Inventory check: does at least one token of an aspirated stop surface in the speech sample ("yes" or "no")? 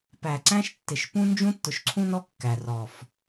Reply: yes